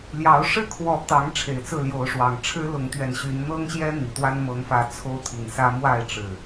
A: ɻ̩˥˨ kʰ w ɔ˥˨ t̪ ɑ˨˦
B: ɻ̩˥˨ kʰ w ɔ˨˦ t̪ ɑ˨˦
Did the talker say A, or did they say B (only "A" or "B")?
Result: B